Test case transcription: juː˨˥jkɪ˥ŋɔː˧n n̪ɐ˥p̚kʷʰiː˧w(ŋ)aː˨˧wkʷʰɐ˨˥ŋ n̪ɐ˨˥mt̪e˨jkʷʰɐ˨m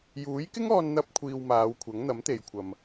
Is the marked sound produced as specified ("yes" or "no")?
no